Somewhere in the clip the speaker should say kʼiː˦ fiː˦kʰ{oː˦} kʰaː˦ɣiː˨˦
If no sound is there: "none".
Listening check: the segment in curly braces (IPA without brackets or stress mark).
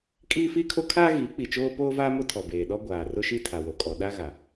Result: o˦